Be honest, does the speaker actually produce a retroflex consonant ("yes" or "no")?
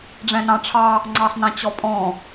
yes